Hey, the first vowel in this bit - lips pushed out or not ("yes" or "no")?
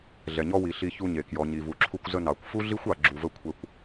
no